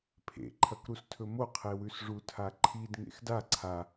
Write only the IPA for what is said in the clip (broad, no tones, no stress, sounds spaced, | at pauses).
pʰ ḛ ǃʰ ɐ k ɾ u s tʰ ɵ m o qʰ e w ʉ s ʐ u tʰ a ǃʰ i d ŋ ḛ x d a ǀʰ a